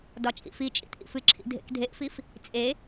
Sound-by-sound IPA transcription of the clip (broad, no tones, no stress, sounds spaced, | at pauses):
d ɒ t͡ʃʼ ḭ f i t͡ʃʼ ḭ t ʔ ḭ f ɨ ǁʰ ḭ dʱ ḛ k dʱ e ʔ f i f | t͡sʼ e